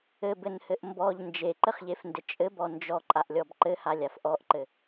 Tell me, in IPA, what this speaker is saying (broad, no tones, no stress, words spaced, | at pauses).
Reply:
ɘbɘnhɘʔ mbɔʎ nd͡ʒeǃɘχʎefndɘ t͡ʃʼɘbɔ nd͡ʒɔǃʼaʔlʲɔb ǃɘhalʲaf ʔɔʔǃɘ